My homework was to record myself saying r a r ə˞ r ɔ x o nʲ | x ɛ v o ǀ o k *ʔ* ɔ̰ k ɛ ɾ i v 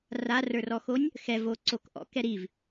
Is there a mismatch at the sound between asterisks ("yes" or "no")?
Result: no